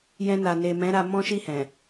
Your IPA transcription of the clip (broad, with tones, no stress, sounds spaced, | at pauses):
j ɛ̃˧ n a˨ n e˨ m ɛ̃˨˦ ɾ a˧ m ɔ̃˦ ʃ i˦˨ h ɛ̃˨